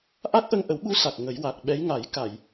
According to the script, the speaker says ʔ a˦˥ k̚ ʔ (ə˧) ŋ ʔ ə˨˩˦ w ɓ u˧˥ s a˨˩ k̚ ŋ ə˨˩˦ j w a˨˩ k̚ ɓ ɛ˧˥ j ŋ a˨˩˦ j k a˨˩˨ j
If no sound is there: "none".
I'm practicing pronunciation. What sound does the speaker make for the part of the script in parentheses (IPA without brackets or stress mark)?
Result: ə˧